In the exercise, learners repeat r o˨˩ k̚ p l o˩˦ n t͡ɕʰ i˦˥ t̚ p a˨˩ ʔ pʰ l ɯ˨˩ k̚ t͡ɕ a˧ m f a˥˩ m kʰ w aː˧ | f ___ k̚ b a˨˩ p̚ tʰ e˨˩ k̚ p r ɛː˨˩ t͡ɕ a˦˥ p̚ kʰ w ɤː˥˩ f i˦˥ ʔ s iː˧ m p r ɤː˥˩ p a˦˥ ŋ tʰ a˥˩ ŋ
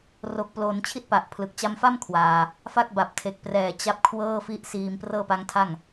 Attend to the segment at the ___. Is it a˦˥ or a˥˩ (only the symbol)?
a˦˥